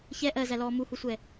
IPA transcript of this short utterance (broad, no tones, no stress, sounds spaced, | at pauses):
ç ɛ ʔ ɜ z æ l ɔː m u h u sʷ ɛ